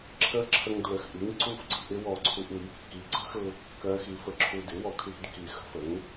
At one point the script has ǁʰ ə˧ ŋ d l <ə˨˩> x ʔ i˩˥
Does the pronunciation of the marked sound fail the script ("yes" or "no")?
no